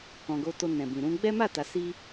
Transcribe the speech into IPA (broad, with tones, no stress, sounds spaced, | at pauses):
k ɔ̃˨ ɡ o˧ t o˧ n ɛ̃˨ b ĩ˨ ɾ ũ˧ ɡ͡b ɛ˦ m a˦˨ t a˨ s i˧